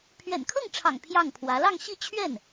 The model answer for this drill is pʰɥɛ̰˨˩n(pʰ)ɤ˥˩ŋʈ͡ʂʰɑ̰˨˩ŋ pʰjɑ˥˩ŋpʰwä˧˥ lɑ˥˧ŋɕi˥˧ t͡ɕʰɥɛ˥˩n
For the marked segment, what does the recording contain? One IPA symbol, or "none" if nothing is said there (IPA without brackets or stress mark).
kʰ